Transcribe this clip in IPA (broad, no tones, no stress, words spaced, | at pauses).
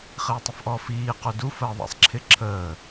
χɪːtˤʊfʔɔfiː qudu fəːðˤɛ̰sˤǁʰɪ ǁʰəː